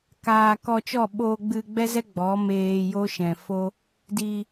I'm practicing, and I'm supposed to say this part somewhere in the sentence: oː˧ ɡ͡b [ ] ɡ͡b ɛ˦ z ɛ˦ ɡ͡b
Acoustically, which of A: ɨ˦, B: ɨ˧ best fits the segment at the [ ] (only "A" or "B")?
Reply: B